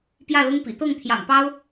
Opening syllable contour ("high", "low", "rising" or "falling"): falling